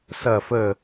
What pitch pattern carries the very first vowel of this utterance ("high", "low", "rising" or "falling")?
falling